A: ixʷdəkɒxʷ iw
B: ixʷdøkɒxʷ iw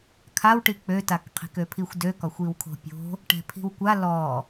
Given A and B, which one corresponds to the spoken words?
B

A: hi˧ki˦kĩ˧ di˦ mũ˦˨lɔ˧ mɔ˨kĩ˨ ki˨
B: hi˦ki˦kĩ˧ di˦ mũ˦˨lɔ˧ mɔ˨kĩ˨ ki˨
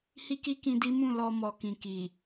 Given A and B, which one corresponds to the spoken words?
B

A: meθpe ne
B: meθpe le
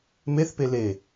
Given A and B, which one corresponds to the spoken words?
B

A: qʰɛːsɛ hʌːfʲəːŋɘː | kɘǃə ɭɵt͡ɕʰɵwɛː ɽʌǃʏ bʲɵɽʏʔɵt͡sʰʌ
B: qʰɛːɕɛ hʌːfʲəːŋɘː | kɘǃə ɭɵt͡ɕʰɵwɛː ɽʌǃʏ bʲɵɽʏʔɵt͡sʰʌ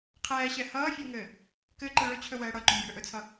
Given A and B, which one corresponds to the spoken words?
B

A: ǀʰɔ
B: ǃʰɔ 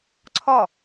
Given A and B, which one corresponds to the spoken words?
A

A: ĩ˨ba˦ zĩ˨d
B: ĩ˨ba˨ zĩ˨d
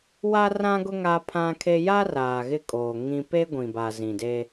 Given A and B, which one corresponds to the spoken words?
B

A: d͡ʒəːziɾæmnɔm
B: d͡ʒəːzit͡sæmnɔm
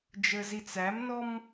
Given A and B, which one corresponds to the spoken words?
B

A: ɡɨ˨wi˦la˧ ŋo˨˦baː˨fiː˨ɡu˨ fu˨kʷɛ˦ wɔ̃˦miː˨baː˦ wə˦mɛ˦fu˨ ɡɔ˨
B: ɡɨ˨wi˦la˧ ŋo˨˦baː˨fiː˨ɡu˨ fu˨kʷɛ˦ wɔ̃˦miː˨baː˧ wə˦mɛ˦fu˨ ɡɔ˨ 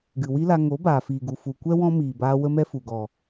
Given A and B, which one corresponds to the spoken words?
B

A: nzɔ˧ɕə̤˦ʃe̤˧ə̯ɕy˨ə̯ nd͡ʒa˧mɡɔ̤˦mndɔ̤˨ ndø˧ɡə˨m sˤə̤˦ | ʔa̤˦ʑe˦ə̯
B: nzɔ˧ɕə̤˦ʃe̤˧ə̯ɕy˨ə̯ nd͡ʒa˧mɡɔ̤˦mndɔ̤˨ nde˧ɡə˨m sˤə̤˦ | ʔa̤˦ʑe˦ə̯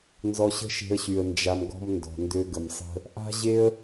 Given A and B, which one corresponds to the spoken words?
A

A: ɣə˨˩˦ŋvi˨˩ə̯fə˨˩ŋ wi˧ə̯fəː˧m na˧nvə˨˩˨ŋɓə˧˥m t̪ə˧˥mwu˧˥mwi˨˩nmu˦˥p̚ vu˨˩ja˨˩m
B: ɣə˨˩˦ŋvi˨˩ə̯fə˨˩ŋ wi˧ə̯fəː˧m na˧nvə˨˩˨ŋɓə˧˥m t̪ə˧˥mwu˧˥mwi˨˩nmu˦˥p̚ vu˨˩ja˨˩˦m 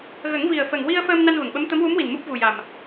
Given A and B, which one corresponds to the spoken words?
A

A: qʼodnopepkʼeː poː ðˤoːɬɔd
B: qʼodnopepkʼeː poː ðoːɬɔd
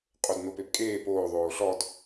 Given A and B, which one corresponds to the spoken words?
A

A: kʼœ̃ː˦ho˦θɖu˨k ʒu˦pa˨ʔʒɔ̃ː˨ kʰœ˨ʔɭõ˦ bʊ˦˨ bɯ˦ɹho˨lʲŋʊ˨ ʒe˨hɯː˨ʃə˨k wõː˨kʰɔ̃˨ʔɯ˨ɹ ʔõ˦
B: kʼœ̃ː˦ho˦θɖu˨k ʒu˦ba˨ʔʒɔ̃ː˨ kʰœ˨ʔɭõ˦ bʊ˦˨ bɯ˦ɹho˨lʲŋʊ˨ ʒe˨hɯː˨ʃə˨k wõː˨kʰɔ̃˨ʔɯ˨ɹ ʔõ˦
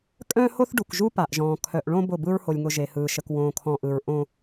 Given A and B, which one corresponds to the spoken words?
A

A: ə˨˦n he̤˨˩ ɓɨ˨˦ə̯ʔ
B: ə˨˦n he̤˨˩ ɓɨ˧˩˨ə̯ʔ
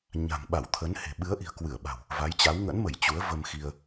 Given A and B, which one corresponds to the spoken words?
A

